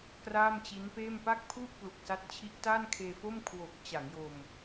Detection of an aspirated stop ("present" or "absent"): present